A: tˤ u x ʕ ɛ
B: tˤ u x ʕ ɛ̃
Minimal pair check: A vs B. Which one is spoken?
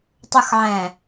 B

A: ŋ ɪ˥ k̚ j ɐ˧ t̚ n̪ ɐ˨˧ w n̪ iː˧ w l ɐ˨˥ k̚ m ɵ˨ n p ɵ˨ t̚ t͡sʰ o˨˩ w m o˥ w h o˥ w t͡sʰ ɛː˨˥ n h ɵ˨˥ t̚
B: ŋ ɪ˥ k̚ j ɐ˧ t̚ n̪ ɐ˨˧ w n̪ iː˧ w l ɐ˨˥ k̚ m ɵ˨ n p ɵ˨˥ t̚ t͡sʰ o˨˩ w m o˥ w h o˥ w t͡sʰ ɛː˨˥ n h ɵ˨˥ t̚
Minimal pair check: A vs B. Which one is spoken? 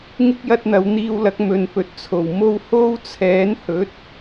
A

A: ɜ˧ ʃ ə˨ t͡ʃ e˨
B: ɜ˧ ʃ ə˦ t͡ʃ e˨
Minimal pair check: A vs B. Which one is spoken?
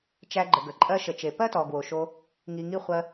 A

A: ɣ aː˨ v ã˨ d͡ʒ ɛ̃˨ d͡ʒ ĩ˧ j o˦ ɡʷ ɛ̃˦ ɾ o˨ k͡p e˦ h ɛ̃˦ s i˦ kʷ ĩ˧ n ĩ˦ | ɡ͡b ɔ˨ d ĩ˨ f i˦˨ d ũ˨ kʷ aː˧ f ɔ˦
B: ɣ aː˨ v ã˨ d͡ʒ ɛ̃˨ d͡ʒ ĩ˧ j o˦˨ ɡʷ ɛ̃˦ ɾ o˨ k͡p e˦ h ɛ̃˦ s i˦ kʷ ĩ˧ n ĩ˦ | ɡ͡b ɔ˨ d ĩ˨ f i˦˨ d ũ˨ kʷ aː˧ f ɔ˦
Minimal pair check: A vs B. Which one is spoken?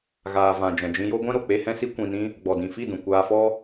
A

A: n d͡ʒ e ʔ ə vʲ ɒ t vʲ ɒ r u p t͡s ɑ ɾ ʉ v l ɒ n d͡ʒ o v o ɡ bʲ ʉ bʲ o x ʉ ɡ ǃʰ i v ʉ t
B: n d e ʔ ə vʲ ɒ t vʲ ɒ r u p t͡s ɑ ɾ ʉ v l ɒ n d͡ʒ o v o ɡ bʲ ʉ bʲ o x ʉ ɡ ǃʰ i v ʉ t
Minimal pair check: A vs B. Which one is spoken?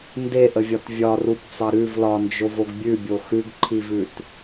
B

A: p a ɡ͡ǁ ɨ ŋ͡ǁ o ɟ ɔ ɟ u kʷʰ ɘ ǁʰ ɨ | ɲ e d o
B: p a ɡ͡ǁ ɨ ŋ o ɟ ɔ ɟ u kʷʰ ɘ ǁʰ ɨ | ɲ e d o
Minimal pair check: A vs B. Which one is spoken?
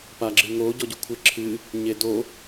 B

